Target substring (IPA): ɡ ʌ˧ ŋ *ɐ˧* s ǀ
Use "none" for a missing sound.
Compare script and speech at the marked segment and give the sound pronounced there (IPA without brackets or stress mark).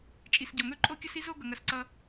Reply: ɐ˧